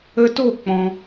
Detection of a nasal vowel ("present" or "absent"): present